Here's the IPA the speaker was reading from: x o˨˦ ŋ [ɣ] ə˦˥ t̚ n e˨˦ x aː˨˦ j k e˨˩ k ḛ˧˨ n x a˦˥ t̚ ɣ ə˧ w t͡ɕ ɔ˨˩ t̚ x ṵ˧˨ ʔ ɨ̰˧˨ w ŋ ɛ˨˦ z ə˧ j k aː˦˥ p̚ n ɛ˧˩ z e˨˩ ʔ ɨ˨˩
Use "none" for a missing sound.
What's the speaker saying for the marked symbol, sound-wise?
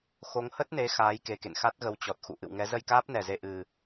h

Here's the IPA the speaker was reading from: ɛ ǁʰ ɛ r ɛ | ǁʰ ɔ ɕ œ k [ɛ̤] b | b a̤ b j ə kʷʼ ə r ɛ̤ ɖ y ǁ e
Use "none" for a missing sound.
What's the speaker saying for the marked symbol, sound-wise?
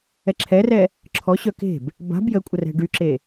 e̤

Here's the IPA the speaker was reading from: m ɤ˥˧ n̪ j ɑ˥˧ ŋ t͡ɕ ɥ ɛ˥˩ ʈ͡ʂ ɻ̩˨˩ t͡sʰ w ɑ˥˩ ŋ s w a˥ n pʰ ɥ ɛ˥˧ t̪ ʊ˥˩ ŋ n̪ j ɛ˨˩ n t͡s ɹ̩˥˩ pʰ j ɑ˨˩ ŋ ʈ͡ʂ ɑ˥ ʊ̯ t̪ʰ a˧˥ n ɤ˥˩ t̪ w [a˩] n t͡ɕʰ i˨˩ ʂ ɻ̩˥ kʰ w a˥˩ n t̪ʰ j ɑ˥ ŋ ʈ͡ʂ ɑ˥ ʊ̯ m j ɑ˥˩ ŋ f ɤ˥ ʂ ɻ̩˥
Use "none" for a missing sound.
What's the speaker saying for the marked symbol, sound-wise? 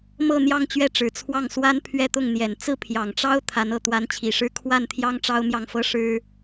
a˧˥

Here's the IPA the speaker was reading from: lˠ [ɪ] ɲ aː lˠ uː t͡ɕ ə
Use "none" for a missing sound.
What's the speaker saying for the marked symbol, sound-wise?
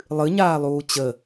ɨ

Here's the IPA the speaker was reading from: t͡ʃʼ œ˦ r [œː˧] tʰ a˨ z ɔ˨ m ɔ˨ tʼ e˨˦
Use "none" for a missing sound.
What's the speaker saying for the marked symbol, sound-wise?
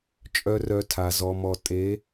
œ˧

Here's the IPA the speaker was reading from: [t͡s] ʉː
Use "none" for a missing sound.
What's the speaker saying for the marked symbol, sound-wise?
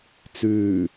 t͡s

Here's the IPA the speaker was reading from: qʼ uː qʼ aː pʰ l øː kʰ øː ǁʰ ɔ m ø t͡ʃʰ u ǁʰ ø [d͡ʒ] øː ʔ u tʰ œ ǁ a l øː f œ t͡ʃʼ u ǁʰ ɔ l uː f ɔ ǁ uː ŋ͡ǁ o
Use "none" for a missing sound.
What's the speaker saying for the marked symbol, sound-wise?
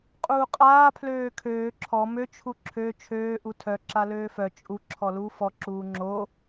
t͡ʃʰ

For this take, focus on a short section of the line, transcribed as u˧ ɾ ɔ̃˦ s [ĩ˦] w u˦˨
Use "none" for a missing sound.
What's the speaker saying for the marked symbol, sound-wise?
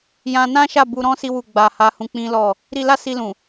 i˦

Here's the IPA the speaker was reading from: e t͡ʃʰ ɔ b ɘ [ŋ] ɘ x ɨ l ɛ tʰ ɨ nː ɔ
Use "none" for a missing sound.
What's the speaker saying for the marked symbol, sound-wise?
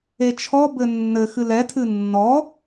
nː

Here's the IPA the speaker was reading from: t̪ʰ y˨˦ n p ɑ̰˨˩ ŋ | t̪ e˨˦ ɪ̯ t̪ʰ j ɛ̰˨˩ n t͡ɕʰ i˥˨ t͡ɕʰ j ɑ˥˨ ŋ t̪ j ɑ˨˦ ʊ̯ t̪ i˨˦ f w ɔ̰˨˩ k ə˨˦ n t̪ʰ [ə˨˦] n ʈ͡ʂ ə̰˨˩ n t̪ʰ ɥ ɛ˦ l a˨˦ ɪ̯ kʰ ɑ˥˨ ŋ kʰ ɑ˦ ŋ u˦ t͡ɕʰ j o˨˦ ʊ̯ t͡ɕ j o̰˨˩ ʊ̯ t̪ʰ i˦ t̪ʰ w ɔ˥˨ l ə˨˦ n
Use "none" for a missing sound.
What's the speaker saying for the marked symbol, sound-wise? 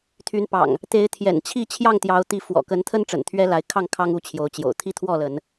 ə˦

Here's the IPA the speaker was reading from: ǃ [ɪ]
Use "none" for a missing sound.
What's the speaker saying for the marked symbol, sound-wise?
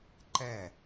ɛ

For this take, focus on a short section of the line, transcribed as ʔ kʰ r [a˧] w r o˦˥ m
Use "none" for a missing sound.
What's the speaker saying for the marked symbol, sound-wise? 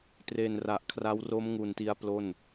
a˦˥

